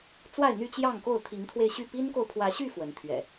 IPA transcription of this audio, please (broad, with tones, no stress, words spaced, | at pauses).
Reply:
t͡swa˥˨ɪ̯n̪y˥˨t͡ɕjɑ˥˨ŋko˥˨ʊ̯ t̪ʰi˨˦ŋt̪ʰwe˧ɪ̯ɕy˥˨ pi˦nko˨ʊ̯pʰwä˨˦ɕy˥˨ fwə˨˦nt̪ʰɥɛ̰˨˩